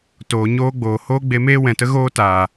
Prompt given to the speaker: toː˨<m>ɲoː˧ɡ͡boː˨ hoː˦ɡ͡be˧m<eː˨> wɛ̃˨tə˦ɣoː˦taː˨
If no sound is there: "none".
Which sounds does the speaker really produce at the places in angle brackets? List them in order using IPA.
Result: none, eː˦

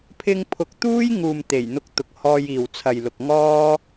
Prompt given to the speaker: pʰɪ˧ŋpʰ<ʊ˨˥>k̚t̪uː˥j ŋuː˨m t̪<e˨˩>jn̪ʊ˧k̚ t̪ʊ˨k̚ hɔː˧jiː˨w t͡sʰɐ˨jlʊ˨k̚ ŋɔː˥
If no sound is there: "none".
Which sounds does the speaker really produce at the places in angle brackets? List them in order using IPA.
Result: ʊ˨˥, e˨˩

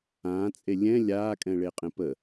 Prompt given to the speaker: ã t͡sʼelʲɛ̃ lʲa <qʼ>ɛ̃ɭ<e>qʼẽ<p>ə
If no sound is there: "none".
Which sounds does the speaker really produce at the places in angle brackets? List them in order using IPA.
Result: kʼ, e, p

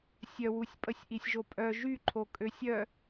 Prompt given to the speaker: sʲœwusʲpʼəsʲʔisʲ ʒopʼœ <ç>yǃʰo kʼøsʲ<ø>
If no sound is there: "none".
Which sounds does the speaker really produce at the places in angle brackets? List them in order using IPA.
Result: ʒ, œ

